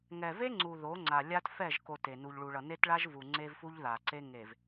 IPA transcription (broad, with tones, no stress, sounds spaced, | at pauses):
ŋ ɛ˨ v e˦ ŋ͡ǀ u˨ ð o˨˦ ŋ͡ǀ a˨ lʲ a˦ t f ɛ˦˨ ʒ k o˨ t e˨ n u˨ ʎ ɭ u˨ ɭ ʌ˨ n e˦ t ɭ a˦ ʒ v u˨ ŋ͡ǀ e˦ v f u˦ ʎ ð a˨ ǀ e˦ ŋ e˨ v